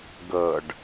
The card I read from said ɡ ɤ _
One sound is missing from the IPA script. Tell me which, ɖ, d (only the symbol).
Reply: ɖ